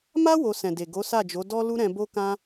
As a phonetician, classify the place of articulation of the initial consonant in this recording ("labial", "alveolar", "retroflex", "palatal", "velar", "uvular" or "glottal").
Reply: labial